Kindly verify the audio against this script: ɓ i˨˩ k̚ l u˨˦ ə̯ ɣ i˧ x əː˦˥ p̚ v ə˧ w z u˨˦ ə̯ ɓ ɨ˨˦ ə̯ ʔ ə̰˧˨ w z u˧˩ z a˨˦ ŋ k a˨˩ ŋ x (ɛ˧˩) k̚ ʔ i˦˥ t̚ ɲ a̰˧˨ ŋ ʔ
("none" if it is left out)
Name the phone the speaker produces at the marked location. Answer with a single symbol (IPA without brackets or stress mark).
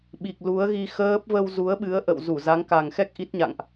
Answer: ɛ˦˥